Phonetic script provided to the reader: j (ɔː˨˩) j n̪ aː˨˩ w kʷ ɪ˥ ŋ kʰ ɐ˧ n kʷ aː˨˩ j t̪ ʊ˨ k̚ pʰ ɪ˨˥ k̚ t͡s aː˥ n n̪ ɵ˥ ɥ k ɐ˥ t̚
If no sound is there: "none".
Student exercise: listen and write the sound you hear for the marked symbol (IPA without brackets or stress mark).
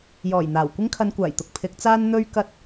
ɔː˨˩